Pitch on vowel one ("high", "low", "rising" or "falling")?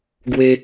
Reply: high